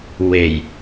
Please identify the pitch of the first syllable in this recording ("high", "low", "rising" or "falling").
low